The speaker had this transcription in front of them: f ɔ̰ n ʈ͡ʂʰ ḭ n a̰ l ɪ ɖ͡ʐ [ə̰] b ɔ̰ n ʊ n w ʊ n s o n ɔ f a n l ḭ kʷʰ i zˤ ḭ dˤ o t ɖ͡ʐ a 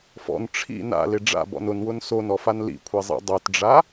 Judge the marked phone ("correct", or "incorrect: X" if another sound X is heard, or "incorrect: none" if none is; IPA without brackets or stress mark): incorrect: a̰